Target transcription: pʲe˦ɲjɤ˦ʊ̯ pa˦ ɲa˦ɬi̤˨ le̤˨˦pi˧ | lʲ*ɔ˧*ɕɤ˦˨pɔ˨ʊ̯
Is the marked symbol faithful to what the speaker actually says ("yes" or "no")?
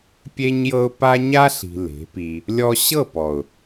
yes